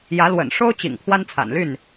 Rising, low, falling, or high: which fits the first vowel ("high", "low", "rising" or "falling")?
rising